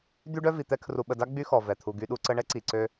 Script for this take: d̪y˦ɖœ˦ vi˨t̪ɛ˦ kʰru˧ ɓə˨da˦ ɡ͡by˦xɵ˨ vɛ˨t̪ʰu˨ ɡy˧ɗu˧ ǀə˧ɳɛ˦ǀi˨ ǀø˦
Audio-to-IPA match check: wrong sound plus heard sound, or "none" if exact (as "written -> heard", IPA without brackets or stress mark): ɵ˨ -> ɔ˨